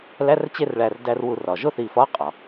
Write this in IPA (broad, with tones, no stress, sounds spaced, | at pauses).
l æ˧˥˧ r t͡ɕ e˥˨ r ɭ æ˧˩ r d æ˧ r w u˧˩˧ r ɒ˩ ʒ o˥˨ θ i˧˩ f ɒ˧˥˧ qʼ ɒ˩